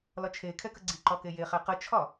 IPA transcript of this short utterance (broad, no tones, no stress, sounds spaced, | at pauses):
l ɒ t͡ʃʰ e kʰ ɛ k ə ɡ͡ǀ i ǃ ɒ k e j e χ æ q ə t͡ʃʰ ɒ